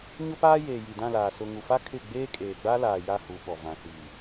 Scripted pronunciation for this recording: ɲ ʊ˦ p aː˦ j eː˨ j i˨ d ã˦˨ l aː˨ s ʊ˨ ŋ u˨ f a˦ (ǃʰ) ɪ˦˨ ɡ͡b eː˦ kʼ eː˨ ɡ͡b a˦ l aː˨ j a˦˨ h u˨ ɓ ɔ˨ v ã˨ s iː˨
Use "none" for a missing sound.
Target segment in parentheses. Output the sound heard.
kʰ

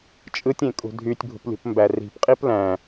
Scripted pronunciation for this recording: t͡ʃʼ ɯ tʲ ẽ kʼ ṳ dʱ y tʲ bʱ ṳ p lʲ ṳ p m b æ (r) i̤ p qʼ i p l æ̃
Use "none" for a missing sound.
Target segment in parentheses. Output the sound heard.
r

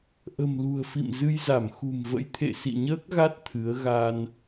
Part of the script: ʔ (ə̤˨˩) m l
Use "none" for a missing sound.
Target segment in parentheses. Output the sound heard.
ə̤˨˩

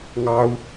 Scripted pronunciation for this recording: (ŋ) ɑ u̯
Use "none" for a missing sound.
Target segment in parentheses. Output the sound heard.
ŋ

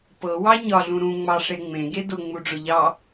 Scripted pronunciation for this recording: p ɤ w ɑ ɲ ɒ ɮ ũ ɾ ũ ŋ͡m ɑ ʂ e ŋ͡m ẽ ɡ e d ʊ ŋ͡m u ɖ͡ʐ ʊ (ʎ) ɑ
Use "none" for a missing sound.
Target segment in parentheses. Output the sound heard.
ʎ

